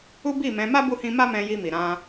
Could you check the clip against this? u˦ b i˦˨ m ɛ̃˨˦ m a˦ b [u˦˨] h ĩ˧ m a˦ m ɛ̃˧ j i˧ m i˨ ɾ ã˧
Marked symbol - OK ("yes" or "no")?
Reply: yes